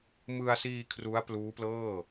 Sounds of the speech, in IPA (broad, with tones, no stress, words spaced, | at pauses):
mɯ˧a̯siː˧ kʰru˦˥a̯pluː˦˥plɤː˥˩